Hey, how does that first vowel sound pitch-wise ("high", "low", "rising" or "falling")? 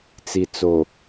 low